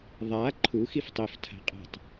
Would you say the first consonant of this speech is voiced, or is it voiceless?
voiced